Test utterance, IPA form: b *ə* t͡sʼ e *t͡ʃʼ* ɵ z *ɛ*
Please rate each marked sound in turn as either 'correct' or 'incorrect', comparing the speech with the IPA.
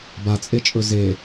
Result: incorrect, correct, incorrect

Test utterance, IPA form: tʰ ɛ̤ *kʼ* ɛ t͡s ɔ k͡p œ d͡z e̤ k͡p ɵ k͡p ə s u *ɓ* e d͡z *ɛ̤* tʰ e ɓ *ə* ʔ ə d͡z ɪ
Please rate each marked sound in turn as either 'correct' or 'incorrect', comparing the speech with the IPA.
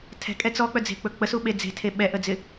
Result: correct, correct, incorrect, incorrect

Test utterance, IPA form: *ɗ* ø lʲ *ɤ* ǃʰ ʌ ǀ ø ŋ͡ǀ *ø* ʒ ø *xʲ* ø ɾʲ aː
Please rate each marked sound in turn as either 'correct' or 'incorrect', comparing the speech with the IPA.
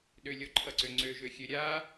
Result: correct, incorrect, correct, correct

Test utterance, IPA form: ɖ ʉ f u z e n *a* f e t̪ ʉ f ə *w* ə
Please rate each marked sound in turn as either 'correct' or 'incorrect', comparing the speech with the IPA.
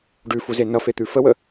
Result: incorrect, correct

